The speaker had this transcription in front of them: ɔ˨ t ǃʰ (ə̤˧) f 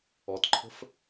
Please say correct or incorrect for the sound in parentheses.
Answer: correct